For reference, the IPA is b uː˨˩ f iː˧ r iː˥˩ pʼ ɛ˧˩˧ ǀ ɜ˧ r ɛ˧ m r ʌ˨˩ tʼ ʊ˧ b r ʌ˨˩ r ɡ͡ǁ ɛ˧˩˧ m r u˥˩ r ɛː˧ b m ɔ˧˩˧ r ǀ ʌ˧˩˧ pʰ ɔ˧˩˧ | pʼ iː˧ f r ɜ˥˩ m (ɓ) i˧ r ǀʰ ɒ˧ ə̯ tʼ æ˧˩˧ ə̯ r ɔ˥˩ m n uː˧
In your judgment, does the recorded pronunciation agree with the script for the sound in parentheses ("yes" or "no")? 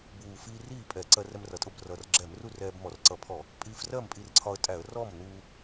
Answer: no